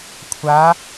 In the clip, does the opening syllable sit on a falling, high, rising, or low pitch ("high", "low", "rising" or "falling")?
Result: rising